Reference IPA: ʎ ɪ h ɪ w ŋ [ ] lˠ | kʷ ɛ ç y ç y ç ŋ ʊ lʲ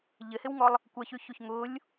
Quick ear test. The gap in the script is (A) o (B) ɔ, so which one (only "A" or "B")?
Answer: B